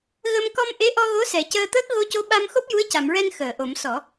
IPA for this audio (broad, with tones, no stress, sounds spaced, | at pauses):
ɣ ə˧ m k ɔ˧ m ʔ e˧˥ ʔ ɔ˧ ɣ o˧˥ s ɛ˨˩˦ c əː˧ t̪ əː˦˥ k̚ ɣ o˧ c o˧˥ ɓ a˧ m x o˦˥ p̚ j u˧˥ ə̯ c a˨˩˨ m ɹ ɛ˧ n x əː˨˩˨ ʔ o˨˩˦ m s ɔ˨˩˦